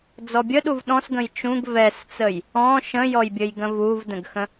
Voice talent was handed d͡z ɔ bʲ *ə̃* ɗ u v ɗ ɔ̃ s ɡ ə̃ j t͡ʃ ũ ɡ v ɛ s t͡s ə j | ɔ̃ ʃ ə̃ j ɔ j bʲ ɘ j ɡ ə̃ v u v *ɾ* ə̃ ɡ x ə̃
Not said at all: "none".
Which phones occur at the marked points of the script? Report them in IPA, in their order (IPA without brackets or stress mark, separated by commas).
ə, d